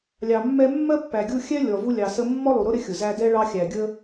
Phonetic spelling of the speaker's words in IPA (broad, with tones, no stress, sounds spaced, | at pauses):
lʲ ɑ˨ mː ɛ˥ mː ɜ˥ pː æ˨ ɡʲ u˦ xʲ ɛ˥ lʲ ɔ˨ v u˦ lʲ ɑ˨ s ə˦ mː ɔ˥ lˠ u˨ ɾ ʊ˥ ɾ ɪ˥ xʲ ʊ˩ z æ˦ d ɛ˥ ɭ ɑ˦ xʲ æ˨ ɡʲ ə˦